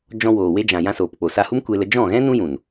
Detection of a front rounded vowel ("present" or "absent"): absent